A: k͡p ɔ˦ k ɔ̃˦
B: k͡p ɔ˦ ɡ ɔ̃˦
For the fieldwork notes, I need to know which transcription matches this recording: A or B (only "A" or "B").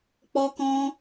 A